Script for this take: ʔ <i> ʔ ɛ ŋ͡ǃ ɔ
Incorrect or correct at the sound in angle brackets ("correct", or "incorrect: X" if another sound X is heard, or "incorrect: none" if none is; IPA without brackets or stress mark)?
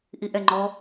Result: correct